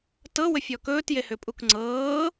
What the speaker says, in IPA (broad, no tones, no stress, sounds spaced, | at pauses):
t ɤ w ə fʲ ɔ k ɵː t j e h ʏ pʼ u k ŋ͡ǀ ɤː